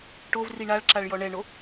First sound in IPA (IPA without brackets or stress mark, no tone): ʈ